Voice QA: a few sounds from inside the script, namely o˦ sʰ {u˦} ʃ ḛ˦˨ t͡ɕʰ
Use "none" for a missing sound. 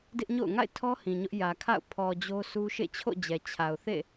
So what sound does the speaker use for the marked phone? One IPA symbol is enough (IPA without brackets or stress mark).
u˦